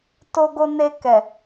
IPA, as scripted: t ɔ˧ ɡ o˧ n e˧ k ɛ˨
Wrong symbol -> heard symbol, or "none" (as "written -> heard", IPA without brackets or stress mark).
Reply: ɔ˧ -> o˧